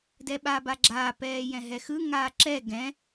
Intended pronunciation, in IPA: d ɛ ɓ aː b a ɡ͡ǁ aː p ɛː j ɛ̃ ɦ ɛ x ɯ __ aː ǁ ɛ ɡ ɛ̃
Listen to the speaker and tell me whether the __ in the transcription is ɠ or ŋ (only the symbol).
ŋ